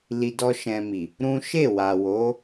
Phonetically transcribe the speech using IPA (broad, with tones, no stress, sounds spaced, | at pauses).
l i˧ d ɔ˦ ʃ ɛ̃˧ m i˨ | ɾ ũ˦ ʃ e˦˨ w a˨ w o˨˦